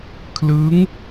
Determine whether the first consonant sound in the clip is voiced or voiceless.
voiceless